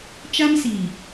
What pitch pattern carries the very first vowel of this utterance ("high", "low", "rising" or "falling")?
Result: high